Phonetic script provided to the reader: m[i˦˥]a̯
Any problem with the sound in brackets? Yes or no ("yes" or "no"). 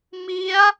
no